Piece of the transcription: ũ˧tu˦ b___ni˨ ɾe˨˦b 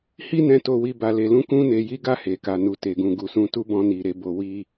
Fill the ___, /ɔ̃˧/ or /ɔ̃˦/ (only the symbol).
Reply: ɔ̃˧